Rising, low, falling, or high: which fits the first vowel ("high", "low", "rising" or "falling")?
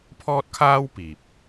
high